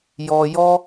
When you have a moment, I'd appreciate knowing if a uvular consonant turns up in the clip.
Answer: no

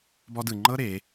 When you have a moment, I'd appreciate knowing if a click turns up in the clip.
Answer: yes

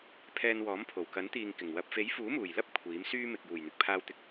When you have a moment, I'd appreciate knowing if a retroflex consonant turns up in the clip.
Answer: no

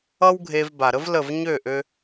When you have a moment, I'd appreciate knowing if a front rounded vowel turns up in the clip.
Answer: yes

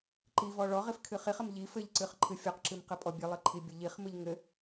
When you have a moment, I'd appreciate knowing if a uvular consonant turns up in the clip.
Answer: yes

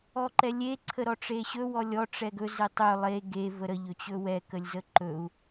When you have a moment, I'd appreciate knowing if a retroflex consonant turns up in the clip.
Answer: yes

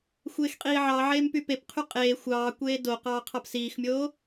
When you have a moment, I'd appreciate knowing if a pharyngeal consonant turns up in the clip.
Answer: yes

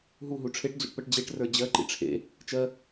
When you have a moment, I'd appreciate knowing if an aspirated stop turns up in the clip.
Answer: yes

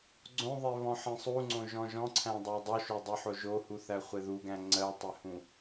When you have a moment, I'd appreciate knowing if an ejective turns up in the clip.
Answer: no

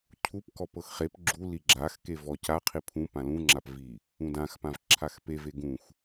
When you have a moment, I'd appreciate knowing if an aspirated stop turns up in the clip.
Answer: yes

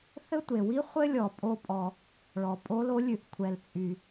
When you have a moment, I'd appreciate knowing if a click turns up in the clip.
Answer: no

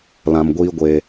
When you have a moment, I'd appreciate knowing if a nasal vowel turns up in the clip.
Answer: yes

